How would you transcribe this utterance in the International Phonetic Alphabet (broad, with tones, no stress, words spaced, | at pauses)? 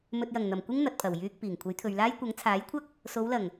mɵ˨t̚jɐ˨˩ŋn̪ɐ˨˩m kʷɪ˥ŋ n̪ɐ˨t̚pʰɐ˨˩w jyː˨k̚ piː˨˩ŋkʷʰɐ˨˥jt̪ʰɵ˨ɥlaː˥j kʷɐ˨˥ŋt͡sʰaː˨˥jkʷʰɐ˥k̚ | so˨˧wlɐ˨˩ŋ